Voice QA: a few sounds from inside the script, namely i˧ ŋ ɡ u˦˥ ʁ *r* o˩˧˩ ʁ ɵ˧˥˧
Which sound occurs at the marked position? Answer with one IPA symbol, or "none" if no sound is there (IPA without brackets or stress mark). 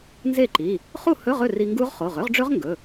χ